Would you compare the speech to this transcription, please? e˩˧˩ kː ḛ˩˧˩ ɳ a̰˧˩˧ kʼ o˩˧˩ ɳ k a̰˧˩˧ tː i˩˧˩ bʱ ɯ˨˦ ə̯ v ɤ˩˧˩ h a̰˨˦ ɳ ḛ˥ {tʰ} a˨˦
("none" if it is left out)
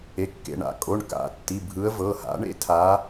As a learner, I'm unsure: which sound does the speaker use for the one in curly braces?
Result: tʰ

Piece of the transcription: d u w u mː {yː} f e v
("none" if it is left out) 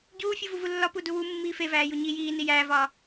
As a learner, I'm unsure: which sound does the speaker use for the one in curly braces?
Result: iː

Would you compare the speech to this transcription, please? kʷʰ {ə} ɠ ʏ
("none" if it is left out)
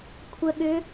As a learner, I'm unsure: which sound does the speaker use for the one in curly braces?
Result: ə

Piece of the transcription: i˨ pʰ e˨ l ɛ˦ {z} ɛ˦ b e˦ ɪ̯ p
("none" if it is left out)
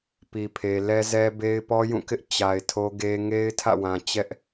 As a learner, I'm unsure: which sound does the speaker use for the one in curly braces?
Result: z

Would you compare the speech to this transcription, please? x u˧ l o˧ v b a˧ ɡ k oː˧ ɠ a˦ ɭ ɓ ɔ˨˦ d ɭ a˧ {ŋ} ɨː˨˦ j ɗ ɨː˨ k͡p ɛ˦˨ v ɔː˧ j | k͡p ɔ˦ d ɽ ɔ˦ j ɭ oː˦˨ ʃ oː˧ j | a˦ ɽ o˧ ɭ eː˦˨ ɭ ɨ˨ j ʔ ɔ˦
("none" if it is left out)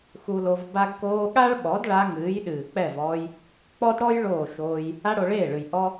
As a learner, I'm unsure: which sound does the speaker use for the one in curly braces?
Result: ŋ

